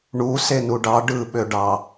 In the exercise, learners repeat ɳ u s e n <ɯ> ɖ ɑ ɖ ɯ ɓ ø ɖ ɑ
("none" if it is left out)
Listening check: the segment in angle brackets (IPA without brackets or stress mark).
u